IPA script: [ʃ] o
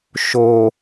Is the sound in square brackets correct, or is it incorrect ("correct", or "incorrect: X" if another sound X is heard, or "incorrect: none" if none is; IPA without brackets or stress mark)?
correct